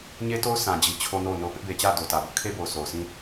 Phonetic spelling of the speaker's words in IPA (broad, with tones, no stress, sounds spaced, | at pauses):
ɲ e˦ t o˦ ʊ̯ sʰ ã˨ d͡ʑ i˨ t͡ɕʰ o˦ n o˦˨ ʊ̯ n o˦˨ ʊ̯ p ɪ˦ ʔ b e˨ t͡ɕ ä˦˨ d o˨ t ä˨ b ʊ˦ ʔ kʰ e˦ b o˨ ʊ̯ s o˨ ʊ̯ s ĩ˦